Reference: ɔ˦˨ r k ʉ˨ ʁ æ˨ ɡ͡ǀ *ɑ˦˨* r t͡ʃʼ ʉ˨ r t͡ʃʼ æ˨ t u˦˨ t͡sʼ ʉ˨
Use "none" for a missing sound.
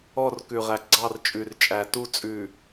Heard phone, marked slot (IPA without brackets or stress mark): ɑ˦˨